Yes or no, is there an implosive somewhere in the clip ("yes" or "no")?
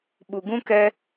yes